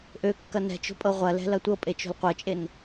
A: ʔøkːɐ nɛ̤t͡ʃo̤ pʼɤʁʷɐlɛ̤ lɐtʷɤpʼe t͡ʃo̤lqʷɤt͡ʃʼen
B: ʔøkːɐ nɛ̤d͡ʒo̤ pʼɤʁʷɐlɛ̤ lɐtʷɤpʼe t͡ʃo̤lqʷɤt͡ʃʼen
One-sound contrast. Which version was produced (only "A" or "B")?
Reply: A